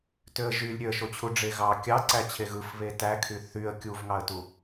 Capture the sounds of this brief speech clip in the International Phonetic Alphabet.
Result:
tøə̯ʒylʲ ɾʲøə̯ʃot͡ɕʰu ɖ͡ʐeɣɑ kʲɑǀæ t͡ɕʰeɣɯfβe tækʰy θyə̯ kʲuvŋɑə̯tu

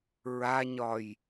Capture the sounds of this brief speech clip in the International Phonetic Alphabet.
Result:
ɹaɲɒj

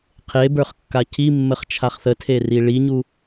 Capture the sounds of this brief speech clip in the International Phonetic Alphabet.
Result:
qʰe bə˞χkːacʰimːəχ t͡ʃʰaχθətʰeri ɭiɲu

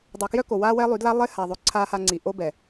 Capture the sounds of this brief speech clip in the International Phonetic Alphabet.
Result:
dˤo˨kjœ˦ko˨ waː˦wɛ˦lˠy˨˦dla˦ lˠe˦haː˨ðˤø˨ ǀʰaː˦ha˦ŋ͡ǀi˨ ʔo˦bɛ˨

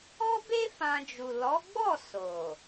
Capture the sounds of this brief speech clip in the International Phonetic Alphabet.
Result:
ɔ˦be˦ fã˧d͡ʒu˨ lɔ˨˦ɡ͡bɔ˦˨ so˨

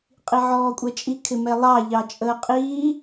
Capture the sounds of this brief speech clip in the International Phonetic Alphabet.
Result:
qʼiʕɔːkʷʼɛt͡ʃʼi kʰɪmɛlˠɑ ʎɑt͡ʃʼəːqʼiː

